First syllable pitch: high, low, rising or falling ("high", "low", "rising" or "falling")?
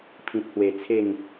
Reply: low